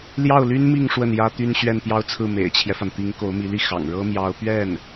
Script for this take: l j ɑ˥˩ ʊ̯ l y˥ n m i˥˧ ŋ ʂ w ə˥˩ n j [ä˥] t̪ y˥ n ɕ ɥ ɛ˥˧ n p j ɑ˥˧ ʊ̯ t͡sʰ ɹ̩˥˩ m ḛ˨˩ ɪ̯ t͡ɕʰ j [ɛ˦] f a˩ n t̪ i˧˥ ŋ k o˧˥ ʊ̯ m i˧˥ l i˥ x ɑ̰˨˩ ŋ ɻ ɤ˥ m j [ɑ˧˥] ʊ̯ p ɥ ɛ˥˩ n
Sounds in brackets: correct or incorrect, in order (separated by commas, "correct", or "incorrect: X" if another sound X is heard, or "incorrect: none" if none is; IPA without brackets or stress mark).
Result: correct, correct, correct